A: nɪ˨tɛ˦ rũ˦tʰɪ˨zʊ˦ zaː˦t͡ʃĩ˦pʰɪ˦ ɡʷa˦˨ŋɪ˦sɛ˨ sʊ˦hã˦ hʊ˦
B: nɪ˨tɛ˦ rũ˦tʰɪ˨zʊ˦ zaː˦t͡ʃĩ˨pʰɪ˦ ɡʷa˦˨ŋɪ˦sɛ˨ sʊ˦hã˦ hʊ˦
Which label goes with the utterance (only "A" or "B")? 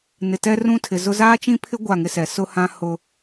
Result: A